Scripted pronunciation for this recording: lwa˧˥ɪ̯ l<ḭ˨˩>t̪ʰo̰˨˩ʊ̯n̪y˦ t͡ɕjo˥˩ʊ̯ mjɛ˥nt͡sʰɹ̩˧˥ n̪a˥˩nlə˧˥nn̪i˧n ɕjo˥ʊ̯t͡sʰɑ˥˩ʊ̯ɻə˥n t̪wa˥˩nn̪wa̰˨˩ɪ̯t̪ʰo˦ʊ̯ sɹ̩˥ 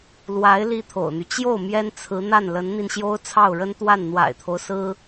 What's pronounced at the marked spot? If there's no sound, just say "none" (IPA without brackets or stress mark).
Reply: i˥